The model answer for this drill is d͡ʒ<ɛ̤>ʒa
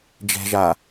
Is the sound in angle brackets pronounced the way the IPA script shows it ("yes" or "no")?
yes